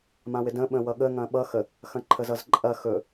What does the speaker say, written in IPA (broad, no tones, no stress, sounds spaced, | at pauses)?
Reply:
m ã w ɪ d ə̃ ɓ ə̃ w ʌ ɠ ə ŋ ɐ̃ ɓ ʌ x ə | x ɐ̃ ǃʰ ə z ʌ z ǃʼ ɐ x ɵ